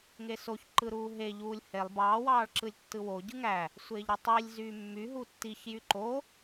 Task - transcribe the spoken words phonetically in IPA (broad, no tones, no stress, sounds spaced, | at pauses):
ŋ e s o ç ǃ ɯ ɾ uː ɦ e ʎ uː lʲ h e lˠ b ɑː w ɑː ɭ ǁ ɯ lʲ tː ɯ w o ɟ ɯ ŋ æ | sʷ eː ʎ ɾ y tˤ i lʲ z yː mː y ɦ u tː i ç j y ǃ o